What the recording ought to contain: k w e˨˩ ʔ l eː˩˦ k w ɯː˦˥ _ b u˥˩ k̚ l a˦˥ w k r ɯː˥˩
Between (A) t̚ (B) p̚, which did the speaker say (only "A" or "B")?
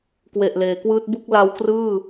A